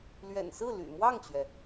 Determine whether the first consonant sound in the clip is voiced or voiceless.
voiced